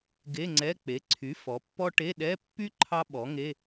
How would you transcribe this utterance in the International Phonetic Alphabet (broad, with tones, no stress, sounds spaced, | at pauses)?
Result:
ɡ e˧˥˧ ŋ͡ǀ ɛ˧˥˧ k͡p e˩˥ ǀʰ y˩˥ f ɔ˩˥ pː ɔ˥ ʈ e˧˥˧ ɗ ɛ˧˥˧ pː y˥ ǃʰ ɑ˥ ɓ ɔ˩˥ ŋ e˧˥˧